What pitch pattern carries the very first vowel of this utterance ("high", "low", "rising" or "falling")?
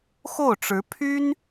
falling